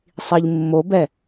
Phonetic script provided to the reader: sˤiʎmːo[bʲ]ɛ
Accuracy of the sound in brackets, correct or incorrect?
incorrect